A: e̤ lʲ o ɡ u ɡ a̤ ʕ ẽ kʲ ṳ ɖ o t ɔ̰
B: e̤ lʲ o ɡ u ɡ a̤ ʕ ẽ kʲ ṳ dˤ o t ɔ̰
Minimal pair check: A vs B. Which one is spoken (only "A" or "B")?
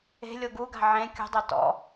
B